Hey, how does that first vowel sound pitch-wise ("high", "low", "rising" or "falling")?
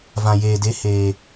low